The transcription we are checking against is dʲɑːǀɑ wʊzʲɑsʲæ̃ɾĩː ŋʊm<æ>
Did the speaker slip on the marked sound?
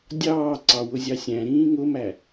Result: no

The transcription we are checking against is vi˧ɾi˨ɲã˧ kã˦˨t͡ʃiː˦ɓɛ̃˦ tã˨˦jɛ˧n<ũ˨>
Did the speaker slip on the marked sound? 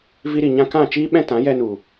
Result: yes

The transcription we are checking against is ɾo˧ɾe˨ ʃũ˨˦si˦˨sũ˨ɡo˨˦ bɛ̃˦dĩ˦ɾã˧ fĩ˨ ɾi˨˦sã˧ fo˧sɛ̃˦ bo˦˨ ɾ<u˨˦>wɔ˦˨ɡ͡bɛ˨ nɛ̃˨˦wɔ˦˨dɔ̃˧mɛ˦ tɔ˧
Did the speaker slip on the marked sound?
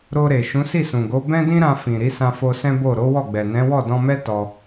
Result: yes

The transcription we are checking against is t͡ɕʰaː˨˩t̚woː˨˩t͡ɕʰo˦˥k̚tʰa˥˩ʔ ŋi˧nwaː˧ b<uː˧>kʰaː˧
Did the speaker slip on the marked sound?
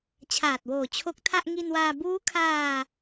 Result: yes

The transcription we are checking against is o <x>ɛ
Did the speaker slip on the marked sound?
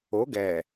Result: yes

